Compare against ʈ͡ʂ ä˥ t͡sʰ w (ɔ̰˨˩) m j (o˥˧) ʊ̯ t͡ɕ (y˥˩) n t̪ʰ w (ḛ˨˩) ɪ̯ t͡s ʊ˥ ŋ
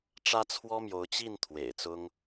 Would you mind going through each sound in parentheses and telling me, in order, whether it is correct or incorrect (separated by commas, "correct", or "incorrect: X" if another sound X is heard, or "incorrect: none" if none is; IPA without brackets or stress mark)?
incorrect: ɔ˥, incorrect: o˧˥, incorrect: i˥˩, correct